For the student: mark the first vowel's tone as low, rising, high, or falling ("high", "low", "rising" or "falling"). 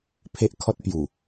high